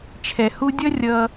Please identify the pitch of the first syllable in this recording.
low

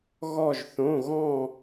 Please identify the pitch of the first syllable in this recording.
falling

